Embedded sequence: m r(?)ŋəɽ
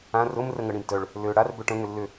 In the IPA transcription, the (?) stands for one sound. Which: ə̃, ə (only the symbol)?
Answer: ə